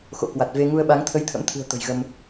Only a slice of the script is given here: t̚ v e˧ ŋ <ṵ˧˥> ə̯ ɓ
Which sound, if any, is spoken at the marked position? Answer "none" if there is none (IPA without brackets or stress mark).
u˧